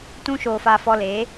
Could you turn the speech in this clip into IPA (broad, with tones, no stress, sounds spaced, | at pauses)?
t ũ˦ ʃ oː˧ f a˧ f ɔ˧ l eː˨˦